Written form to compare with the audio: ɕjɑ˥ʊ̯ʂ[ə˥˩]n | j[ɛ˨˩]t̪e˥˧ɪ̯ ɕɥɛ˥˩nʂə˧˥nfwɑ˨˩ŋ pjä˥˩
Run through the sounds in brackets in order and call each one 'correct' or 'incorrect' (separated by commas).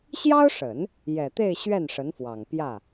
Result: incorrect, correct